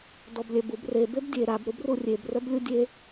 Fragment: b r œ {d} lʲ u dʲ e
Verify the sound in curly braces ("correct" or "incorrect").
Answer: incorrect